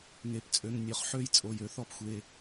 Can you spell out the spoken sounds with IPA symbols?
ŋ e˩˧˩ p t͡sʼ ø˩˧˩ ŋ nʲ ø˩˧˩ χ ħ ø˥˩ j t͡sʼ o˩˧˩ j ø˩˧ θ ɔ˥˩ p xʷ e˩˧˩

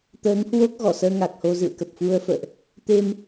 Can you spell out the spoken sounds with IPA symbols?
t̪ əː˨˦ ŋ h w o˦˥ k̚ ɣ ɔ˧˩ s əː˧ ŋ a˨˩ k̚ h o˧ z ɨ̰˧˨ ə̯ k ə˨˩ p̚ f u˧ ə̯ f ə̰ː˧˨ ʔ | t̪ e˧ m

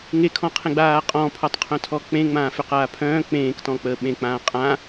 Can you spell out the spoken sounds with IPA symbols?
ŋ e kʰ ɔ̃ qʰ ẽ ɡ͡b aː qʼ ɔ̃ pʰ ɔ tˤ qʰ œ̃ tʰ ɔ k͡p ẽ ŋ͡m ãː f ʏ q aː pʰ œ̃ː k͡p ẽː k t ɔ̃ k͡p əː ɓ ẽ k͡p ãː qʼ ã

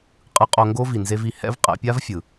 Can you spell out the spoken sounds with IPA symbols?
qʼ ɯ˧ qʼ o˧ ŋ ɡ o˦ v i˨ n z e˦ v i˧ h ɛ̰˦ v qʼ ɛ̰˧ pʲ a˦ v fʲ ɯ˨

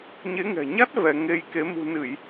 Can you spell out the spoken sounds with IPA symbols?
ɲ e˨˦ ŋ ɛ̤˨˩ ɲ a˦˥ t̚ v ɛ˧ ŋ e˧ j k e˨˦ m ṳ˨˩ n ɨ˧˩˨ j

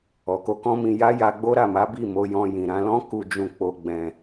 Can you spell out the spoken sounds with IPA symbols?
ɔ˨ k o˧ k ɔ̃˦ m ĩ˧ j a˦ j a˧ ɡ͡b o˦ ɾ a˦˨ m a˨˦ b i˦˨ m o˧ j ɔ̃˧ j ĩ˨ ɾ ã˧ l ɔ̃˦ k u˧ d͡ʒ ũ˧ k͡p o˧ ɡ͡b ɛ̃˧

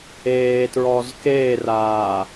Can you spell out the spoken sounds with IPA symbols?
eː t ɹ ɔ z k eː r aː

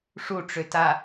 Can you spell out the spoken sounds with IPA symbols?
ʂ u ʈ͡ʂ ø t a

